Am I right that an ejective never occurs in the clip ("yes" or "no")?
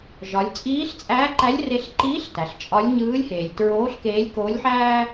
no